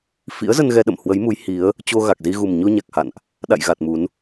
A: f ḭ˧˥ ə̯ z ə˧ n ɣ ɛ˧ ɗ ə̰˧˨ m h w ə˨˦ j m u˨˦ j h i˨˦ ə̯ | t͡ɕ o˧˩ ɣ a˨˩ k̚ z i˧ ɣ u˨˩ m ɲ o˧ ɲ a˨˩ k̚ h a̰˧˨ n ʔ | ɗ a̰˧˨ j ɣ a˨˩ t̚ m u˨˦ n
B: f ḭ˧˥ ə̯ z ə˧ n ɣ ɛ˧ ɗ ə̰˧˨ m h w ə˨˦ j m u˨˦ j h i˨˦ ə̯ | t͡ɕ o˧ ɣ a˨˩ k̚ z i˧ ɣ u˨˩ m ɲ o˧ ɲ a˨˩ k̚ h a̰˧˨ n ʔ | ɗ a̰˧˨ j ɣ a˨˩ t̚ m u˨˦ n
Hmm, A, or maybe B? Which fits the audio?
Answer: B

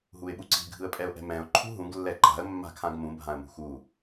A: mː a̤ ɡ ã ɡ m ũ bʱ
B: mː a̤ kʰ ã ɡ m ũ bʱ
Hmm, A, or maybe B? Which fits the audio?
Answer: B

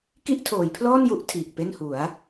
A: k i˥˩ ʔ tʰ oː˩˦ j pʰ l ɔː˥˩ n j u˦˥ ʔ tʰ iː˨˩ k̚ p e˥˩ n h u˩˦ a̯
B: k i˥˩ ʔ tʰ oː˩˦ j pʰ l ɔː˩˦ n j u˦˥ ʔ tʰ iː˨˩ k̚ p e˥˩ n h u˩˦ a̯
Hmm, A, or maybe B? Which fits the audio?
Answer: A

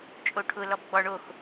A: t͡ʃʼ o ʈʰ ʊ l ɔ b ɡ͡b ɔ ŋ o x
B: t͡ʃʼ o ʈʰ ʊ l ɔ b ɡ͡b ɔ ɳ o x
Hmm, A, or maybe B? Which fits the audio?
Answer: B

